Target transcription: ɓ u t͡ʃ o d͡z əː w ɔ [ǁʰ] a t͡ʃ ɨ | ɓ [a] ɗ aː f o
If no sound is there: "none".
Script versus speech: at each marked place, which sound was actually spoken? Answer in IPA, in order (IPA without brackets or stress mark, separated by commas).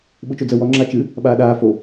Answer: ŋ͡ǁ, aː